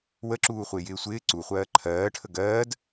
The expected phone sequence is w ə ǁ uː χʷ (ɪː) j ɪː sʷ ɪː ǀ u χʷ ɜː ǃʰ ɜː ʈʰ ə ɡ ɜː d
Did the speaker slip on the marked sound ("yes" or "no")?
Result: no